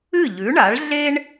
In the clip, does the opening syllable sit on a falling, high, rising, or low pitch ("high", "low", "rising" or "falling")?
falling